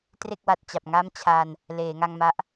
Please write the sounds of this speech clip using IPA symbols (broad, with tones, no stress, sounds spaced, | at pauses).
t r e˥˩ k̚ w a˨˩ t̚ t͡ɕ a˨˩ p̚ ŋ a˦˥ m t͡ɕʰ a˧ n | l eː˩˦ ŋ a˧ ŋ m a˦˥ ʔ